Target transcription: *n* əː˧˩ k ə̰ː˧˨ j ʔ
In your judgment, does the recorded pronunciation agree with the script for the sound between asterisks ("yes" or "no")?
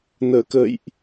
yes